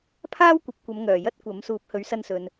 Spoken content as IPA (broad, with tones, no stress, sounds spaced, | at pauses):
pʰ aː˥ w kʷ ɐ˨˥ p̚ kʷ ɐ˨˧ m ŋ œː˨˩ j ɐ˥ t̚ kʷ ɐ˨˥ m s uː˨˥ p̚ h ɵ˨˥ ɥ s ɐ˧ n s ɵ˨ n